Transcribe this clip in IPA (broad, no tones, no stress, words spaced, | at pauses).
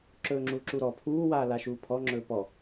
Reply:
ǁɵːŋ͡ǁuːǁuɾɔ pʰuːwaː laʃuːpʰɔŋ͡ǁɵː pɔ